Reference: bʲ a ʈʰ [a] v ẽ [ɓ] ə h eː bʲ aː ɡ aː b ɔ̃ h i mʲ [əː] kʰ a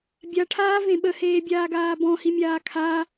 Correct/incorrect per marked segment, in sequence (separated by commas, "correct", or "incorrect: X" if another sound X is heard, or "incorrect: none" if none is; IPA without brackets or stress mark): incorrect: aː, correct, incorrect: aː